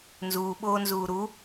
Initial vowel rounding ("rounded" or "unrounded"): rounded